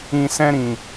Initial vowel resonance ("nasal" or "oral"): nasal